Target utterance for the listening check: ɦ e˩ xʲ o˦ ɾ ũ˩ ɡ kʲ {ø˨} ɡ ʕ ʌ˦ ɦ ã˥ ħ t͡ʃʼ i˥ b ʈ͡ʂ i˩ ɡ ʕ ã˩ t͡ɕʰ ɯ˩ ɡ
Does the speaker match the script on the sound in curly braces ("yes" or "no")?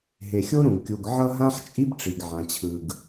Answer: no